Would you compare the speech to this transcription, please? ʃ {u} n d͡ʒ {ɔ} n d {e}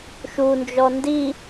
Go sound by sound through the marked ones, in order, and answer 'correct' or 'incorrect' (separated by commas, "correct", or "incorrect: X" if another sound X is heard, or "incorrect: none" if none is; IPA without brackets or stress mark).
correct, correct, incorrect: i